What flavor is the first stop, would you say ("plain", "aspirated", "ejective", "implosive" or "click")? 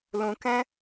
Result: plain